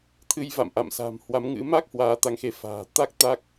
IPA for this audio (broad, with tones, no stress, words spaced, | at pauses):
t̪ʰɨ˧jva̰˧˨m ʔa̰˧˨msa̤˨˩m hwa˨˦mŋɨ̰˧˥ ma˦˥k̚ hwaː˨˦t̪a˨˦ŋxe˨˦ fa̤ː˨˩t̪a˦˥k̚ t̪a˦˥k̚